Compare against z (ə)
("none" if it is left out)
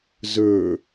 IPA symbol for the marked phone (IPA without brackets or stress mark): ə˞